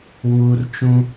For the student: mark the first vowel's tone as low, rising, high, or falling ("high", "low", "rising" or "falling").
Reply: low